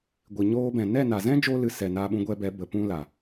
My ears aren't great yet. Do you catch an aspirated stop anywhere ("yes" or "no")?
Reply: no